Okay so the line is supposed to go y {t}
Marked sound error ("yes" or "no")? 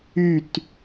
no